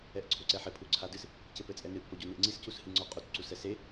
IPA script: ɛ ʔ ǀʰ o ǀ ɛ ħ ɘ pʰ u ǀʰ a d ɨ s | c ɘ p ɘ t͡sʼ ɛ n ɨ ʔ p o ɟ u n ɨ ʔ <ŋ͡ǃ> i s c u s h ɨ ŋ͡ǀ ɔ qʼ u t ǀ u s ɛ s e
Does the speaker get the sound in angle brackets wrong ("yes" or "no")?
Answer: yes